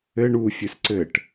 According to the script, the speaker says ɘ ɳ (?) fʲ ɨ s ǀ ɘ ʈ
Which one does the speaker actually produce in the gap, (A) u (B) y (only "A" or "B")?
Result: A